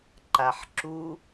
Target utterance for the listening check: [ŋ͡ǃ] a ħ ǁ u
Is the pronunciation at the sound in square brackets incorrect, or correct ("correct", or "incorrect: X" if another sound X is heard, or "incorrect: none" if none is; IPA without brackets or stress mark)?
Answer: incorrect: ǃ